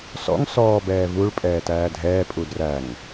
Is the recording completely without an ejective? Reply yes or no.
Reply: no